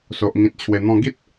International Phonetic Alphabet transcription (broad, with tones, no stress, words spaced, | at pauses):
so˨ʔŋĩ˨t̚ t͡ɕʰwe˨˩n̪ɔ̃˧ ɡi˦t̚